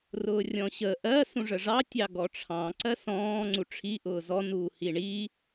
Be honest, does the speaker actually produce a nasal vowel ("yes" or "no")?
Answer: yes